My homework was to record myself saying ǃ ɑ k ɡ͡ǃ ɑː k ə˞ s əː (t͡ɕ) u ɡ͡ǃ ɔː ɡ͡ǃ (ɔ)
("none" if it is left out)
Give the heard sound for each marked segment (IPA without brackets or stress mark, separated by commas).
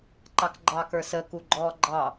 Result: k, ɑ